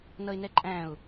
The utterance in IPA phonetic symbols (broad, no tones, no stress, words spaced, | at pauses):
nʌɪ̯nɛǃʼæ̃ʊ̯